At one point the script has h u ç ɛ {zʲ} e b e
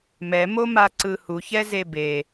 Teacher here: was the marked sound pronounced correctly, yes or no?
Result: no